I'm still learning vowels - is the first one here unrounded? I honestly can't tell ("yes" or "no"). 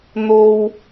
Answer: no